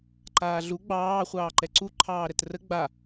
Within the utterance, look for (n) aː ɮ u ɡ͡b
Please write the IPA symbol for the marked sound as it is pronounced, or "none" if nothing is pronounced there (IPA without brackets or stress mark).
ǃ